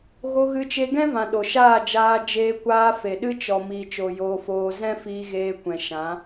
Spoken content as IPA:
ɣ o˧ ɣ ɨ˧ t͡ʃ e˧ ɡ ɛ̃˦ v ã˨ ɗ o˨ ʃ aː˦˨ d͡ʒ aː˧ d͡ʒ eː˧ kʷ aː˧ f e˨ ɗ ɨ˦ t͡ʃ ɔ˨ m iː˨ t͡ʃ o˨ j oː˧ f oː˧ z ɛ̃˦ f iː˧ ɣ eː˧ kʷ ɛ̃˨ ʃ ã˨˦

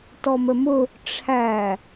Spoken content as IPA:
t ɔ m ə m ʊ | ʈ͡ʂʰ æ

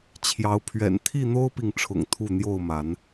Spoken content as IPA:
t͡ɕʰ j ɑ˨˦ ʊ̯ pʰ ɥ ɛ̰˨˩ n t̪ʰ i˥˨ n̪ o˦ ʊ̯ p i˨ ŋ ʈ͡ʂʰ ʊ̰˨˩ ŋ t̪ʰ u˥˨ n̪ j o˥˨ ʊ̯ m a˨˦ n

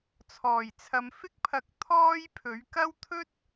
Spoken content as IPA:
t͡sʰ ɔː˨˩ j t͡sʰ ɐ˨ m f ɪ˥ k̚ pʰ ɐ˨˥ k̚ t̪ʰ ɔː˥ j pʰ ɵ˨˥ ɥ k ɐ˥ w t̪ʰ ɵ˥ t̚

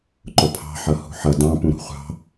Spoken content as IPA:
ǃ ʊ pʰ ɑ̤ ħ ʌ h ṳ ħ ʌ d ɑ̃ p ũ ɾ ṳ χʷ ɑ̤

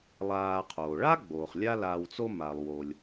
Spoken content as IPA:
lˠ aː˨ qʰ oː˩ ɭ a˥ ɡ͡b oː˩ χ lʲ a˦ l aː˨ w t͡s o˦ m a˩ lˠ w o˩ lʲ

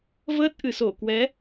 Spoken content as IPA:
v əː˦˥ t̚ ʔ ɨ˨˩ s o˧˩ k w ɛ˨˦

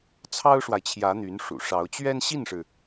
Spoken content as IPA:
t͡sʰ ɑ˥ ʊ̯ ʂ w a˨ ɪ̯ t͡ɕʰ j ä˧˥ n̪ y˧˥ n ʂ ṵ˨˩ ʂ ɑ˧˥ ʊ̯ t͡ɕ ɥ ɛ˥ n ɕ i˥˩ n ʂ ɻ̩˩

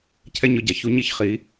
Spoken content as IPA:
cʰ ɛ˦ ɲ ɔ˦ ɟ a˧ ç u˦ ɲ i˦ ç χ i˨˦

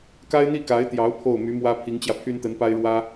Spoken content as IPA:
k a˥ ɪ̯ n̪ i˥˩ k a˧˥ ɪ̯ t̪ j ɑ˧˥ ʊ̯ pʰ o˥˩ ʊ̯ m y˧˥ m w ä˥ pʰ i˧˥ ŋ t͡ɕ j ä˧ pʰ y˥ n t̪ ə˧˥ n p a˥ ɪ̯ ɻ w ä˥

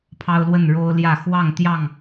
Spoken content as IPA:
pʰ ɑ˦ ʊ̯ l w ə˥˨ n ɻ o˦ ʊ̯ l j ä˥˨ x w ɑ˥˨ ŋ t̪ j ɑ˥˨ ŋ

